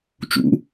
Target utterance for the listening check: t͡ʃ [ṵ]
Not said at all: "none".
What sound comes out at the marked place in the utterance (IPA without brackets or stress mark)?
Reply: ṵ